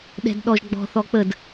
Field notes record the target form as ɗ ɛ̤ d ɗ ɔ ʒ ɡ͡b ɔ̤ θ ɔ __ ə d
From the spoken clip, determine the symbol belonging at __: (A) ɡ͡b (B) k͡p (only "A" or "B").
B